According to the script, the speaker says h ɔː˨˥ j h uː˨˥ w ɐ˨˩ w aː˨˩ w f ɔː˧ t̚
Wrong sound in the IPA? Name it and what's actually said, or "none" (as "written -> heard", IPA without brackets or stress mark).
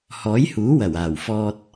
none